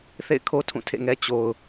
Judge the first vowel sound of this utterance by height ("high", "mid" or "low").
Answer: mid